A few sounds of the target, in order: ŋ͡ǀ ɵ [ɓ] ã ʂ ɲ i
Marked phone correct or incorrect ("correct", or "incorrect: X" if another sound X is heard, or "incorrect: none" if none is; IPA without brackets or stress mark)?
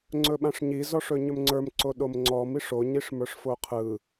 correct